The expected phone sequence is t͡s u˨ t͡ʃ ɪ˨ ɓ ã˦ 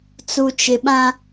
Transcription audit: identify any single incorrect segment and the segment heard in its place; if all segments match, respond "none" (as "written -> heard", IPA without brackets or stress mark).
none